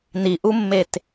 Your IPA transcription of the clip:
n i ʔ u mː e t

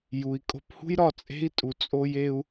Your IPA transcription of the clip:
j u˨ i̯ kʼ o̤˧ p h ṳ˦ j ɾ ɒ˧ t͡sʼ e̤˦ i̯ tʼ u˨ t͡sʼ o˧ j e˧ u̯

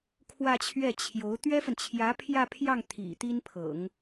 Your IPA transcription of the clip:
kʰ w ä˥˧ t͡ɕʰ ɥ ɛ˥˩ t͡ɕʰ j o˧˥ ʊ̯ t̪ ɥ ɛ˥ f ə˨ n t͡ɕʰ j ä˧˥ pʰ j ä˥˧ pʰ j ɑ˥˩ ŋ t̪ʰ ḭ˨˩ t̪ i˥ n pʰ ɤ̰˨˩˦ ŋ

